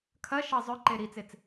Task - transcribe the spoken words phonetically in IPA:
kʰ ɐ ʃ ʌ zˤ ʏ ǃ e ɾ i t͡s e t͡s

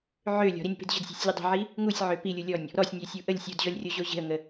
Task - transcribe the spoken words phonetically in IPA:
ʕ ø lʲ ɔ̤ ɾ i nʲ ə̤ p e̤ d ʑ ə̤ d sʲ e̤ sʲ lʲ u dˤ ə̤ ʕ i | ŋ u sʲ ʕ ø p i lʲ u lʲ ɔ nʲ | ɾ ɔ sʲ nʲ ø sʲ u ʔ ə lʲ sʲ u d ʑ ɔ lʲ rʲ o ʑ o ʑ e̤ ə̯ ŋ ə

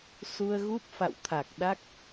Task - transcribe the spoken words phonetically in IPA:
s u˧ ə̯ ɣ u˦˥ p̚ f a̰˧˨ w t̪ʰ a˨˩ k̚ ɗ a˦˥ k̚

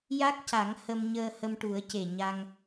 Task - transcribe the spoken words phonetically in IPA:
j a˦˥ k̚ c a˨˩˦ ŋ h ə˧ m ɲ əː˧ h ə˧ m ʈ u˨˩˦ ə̯ c e˨˩ ɲ a˧ ŋ

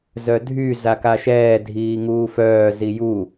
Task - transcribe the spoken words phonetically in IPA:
z œ dʱ y z a k a ʃ ɛː dʱ iː ŋ uː f œː z i j u

